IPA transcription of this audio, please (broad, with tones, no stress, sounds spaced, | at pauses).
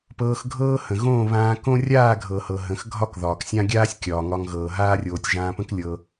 p ɤː˧ x ɡʱ ɤː˦ h ə̃˨ ɣ õː˦˨ β ãː˧ k õ˦ rʲ aː˦˨ ɡʱ ɤ˨ h ɤ˨ ɦ ə̃˧ x ɡʱ ɒ˦ k ð ɒː˨ k sʲ ã˦ ɡʲ aː˦ sʲ kʲ ɒː˨ ŋ ɒ˧ ŋ ɣ ɤː˨ ɦ aː˦ rʲ oː˧ tʲ ʒ ãː˧ p ə̃˦ k lʲ ɤ˧